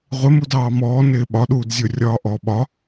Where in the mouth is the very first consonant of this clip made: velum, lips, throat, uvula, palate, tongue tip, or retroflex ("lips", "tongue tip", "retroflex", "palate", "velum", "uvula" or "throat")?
uvula